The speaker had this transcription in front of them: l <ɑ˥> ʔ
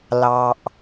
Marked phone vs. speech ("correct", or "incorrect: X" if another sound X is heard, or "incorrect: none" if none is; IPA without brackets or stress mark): incorrect: ɑ˩